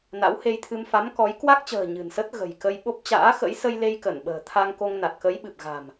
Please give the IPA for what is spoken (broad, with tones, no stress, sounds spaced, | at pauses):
n a̰˧˥ w h e˧ j t̪ʰ ɨ˧ m f a˨˦ m k ɔ˨˦ j k w a˦˥ k̚ t͡ɕ ə̤ː˨˩ ɲ ɨ̤˨˩ n s ə˦˥ t̚ ɣ ə̤˨˩ j k ə˧ j ɓ o˦˥ p̚ t͡ɕ a̰ː˧˥ x ə̰˧˥ j s ə˧ j l e˧ j k ə˧˩ n ɓ ə̤ː˨˩ t̪ʰ a˧ ŋ k o˧ ŋ n a˨˩ t̚ k ə˨˦ j ɓ ɨ˨˩ p̚ ɣ a̤˨˩ m